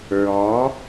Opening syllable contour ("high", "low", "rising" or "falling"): rising